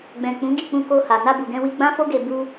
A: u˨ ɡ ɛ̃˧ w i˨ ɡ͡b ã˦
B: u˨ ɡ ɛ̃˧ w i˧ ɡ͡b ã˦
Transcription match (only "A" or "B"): B